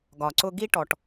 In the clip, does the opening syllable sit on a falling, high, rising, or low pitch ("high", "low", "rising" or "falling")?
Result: low